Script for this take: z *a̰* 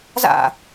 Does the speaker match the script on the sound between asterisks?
yes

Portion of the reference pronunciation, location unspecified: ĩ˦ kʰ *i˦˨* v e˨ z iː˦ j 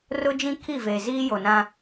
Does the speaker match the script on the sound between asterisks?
yes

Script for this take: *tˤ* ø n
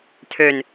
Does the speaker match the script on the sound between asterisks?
no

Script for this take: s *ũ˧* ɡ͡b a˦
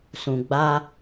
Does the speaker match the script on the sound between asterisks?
yes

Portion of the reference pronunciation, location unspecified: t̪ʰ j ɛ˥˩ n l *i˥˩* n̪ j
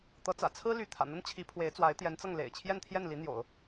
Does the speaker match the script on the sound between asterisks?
no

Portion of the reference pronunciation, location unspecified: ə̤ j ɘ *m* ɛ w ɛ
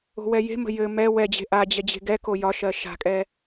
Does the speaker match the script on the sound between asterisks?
yes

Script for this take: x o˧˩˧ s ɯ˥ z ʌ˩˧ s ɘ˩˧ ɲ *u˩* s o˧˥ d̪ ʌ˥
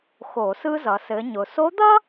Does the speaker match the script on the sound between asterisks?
no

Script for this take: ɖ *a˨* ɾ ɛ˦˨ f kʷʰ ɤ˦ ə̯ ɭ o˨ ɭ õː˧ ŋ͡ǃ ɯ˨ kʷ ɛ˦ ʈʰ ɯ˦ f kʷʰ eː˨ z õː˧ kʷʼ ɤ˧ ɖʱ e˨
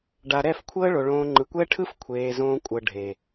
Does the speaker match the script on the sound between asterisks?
yes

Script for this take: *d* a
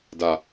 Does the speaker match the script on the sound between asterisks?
yes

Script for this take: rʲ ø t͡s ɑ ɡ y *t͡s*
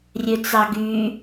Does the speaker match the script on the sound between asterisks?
no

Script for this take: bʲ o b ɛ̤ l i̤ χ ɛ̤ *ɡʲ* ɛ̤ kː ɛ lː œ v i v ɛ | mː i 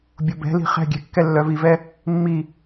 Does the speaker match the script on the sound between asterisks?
yes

